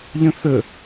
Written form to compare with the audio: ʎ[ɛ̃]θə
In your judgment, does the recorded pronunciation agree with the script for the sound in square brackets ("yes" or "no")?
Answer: no